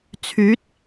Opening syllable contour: rising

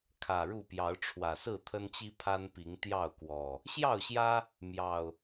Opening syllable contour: low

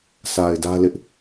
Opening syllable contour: low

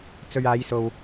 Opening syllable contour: low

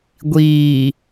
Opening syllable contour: low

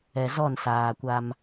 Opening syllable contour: low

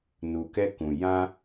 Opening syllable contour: low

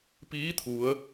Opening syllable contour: rising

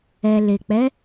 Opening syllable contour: low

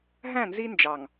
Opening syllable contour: falling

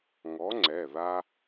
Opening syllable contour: rising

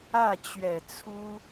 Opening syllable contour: falling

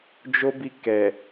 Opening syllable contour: high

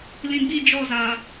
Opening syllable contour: low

